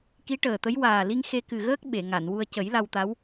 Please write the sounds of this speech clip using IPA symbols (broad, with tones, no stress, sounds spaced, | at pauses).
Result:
k i˧˥ ʈ əː˨˩ t̪ ə˧˥ j w aː˨˩ l i˧ ŋ x e˧ k ɨ˨˩ ɣ əː˦˥ k̚ ɓ e˨˩˨ ŋ a˨˩˨ n w u˧ ə̯ c ə˨˩˦ j l a˧ w t̪ a˧˥ w